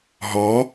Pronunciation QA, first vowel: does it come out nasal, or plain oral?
oral